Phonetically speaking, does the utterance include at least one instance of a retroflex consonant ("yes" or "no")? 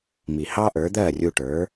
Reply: yes